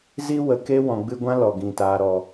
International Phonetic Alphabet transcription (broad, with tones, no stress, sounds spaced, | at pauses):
z i˧ w ə˨ k e˧ w ɔ̃˨ ɡ͡b ɨ˧ ɡʷ ã˦ l ɔ˨ ɡ ĩ˨ t aː˨ ɾ ɔ˨